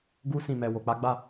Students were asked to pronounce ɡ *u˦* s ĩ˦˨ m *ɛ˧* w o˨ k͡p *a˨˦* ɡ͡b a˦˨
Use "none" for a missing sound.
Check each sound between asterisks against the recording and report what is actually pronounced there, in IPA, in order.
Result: u˦, ɛ˧, a˨˦

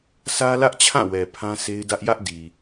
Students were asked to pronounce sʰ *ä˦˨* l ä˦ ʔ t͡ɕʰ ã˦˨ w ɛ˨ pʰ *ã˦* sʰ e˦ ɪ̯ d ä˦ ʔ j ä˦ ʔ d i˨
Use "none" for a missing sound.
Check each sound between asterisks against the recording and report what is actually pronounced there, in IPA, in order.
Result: ä˦, ã˦

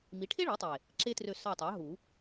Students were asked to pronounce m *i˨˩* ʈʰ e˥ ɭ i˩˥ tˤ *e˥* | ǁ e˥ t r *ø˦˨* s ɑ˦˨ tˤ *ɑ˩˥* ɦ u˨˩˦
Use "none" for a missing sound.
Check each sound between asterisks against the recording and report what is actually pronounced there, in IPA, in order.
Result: i˩˥, e˨˩, ø˦˨, ɑ˩˥

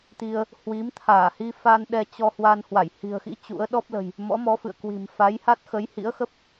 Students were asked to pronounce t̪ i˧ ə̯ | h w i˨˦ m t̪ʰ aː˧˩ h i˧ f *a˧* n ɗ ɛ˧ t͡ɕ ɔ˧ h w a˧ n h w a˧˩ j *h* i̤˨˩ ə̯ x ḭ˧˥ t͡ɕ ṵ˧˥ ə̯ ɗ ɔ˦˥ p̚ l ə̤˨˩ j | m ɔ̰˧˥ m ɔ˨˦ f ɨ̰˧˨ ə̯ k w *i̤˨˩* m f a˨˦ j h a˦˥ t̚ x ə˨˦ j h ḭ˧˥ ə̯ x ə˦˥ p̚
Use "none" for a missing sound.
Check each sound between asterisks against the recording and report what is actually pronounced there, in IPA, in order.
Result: a˧, h, i̤˨˩

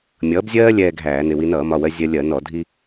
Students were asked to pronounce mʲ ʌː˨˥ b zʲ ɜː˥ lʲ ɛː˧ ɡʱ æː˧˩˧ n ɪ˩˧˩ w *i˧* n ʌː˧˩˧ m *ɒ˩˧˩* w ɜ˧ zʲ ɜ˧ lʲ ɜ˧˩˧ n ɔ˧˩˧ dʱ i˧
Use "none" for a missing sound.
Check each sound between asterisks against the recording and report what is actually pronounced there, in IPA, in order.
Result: i˧, ɒ˩˧˩

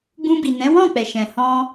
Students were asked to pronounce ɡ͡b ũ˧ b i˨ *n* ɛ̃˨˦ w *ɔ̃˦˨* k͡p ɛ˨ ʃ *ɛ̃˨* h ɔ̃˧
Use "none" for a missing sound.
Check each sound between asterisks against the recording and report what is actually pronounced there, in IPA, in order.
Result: n, ɔ̃˦˨, ɛ̃˨

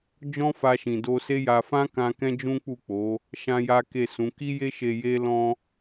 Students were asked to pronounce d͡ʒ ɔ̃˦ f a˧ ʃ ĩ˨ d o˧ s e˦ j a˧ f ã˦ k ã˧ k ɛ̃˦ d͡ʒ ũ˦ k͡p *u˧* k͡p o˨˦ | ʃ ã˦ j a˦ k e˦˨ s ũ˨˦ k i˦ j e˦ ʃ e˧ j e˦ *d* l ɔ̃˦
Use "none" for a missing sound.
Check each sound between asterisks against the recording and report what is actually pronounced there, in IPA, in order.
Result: u˦˨, none

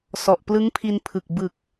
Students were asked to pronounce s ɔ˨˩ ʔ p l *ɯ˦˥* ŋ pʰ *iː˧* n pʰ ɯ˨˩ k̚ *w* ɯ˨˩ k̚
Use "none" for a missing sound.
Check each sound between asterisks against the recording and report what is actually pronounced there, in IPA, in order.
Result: ɯ˦˥, i˧, b

